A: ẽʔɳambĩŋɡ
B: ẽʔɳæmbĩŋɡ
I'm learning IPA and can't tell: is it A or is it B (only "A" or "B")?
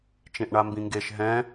A